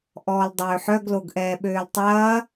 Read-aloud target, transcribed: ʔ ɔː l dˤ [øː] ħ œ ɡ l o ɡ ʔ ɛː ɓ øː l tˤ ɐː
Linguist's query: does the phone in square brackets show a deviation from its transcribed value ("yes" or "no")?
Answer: no